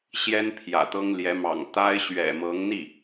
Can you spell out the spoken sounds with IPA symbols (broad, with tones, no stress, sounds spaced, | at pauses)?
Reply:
ɕ j ɛ˥ n pʰ j ä̰˨˩ t̪ ɤ˥ ŋ l j ɛ˧˥ m ɑ̰˨˩ ŋ t̪ a˥ ɪ̯ ɕ ɥ ɛ̰˨˩ m ɤ˧˥ ŋ n̪ i˥˩